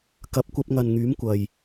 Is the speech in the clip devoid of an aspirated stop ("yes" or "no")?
yes